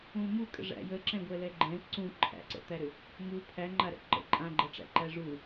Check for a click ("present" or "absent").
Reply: present